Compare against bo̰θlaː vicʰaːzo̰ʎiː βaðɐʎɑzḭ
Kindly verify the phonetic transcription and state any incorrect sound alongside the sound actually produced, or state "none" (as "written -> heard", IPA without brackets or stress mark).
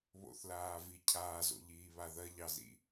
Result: b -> β